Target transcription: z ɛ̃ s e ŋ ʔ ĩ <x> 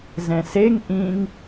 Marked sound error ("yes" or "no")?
yes